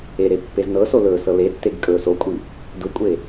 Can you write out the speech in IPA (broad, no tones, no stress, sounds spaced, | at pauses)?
e ɾ e pː e z n ɤ s o l ɵː s ɤ l e tː e ɡ kʼ ɵː s o kʷʼ i | d ʊ kʷʼ e